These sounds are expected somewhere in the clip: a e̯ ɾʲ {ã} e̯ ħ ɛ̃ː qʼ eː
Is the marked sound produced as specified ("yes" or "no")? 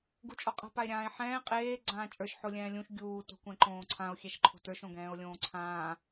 no